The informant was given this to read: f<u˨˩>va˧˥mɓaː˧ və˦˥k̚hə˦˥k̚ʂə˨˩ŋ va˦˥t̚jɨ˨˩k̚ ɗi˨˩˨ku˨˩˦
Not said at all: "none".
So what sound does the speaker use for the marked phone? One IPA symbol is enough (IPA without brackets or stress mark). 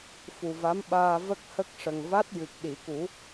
u˨˩